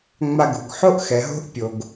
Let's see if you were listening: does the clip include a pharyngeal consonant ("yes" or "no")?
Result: yes